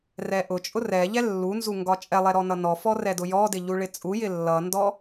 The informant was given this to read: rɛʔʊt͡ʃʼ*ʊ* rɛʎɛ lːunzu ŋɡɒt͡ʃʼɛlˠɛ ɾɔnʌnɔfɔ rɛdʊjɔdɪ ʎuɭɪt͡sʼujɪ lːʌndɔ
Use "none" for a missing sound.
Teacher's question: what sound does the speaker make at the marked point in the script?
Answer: ʊ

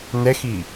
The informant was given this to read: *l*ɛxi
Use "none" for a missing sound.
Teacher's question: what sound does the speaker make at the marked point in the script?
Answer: n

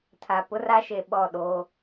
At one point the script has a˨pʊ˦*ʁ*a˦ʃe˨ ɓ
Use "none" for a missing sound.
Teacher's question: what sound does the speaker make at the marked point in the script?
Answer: r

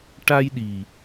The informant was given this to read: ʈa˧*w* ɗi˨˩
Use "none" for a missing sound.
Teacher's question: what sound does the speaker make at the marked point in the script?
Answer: j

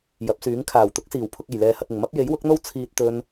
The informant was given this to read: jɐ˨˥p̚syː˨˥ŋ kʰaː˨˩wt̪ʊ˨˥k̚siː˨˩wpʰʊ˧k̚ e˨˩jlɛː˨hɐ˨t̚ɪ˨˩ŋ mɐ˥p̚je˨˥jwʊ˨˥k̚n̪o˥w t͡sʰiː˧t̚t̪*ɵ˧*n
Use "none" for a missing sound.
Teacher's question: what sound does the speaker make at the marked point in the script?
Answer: ɵ˧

